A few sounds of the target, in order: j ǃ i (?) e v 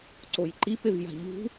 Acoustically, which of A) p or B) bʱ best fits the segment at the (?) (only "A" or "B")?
A